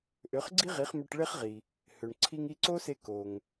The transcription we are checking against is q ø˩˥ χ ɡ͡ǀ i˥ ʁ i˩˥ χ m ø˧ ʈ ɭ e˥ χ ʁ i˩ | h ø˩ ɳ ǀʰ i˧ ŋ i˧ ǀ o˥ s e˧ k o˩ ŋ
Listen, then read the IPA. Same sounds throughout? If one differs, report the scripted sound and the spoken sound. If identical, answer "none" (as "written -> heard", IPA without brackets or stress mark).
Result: q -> ʔ